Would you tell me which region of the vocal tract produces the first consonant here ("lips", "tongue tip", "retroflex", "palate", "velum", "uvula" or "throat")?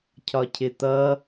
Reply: palate